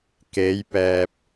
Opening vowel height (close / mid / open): mid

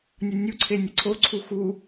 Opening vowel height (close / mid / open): mid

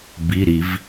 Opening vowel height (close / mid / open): close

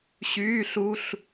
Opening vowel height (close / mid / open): close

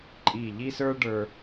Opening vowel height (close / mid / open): close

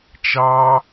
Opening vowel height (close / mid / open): open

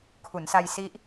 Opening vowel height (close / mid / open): close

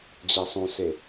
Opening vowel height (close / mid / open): mid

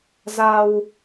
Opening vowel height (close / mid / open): open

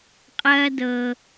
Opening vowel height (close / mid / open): open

